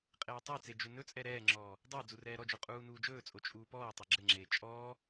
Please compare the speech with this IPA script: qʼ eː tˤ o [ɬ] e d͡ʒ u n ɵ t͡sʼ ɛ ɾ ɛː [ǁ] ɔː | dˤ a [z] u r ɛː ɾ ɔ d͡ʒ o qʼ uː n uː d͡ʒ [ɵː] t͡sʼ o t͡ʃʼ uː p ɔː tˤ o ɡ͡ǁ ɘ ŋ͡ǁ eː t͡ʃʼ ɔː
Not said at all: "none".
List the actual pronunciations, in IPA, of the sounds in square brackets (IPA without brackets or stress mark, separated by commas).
t͡s, ŋ͡ǁ, d͡z, ɵː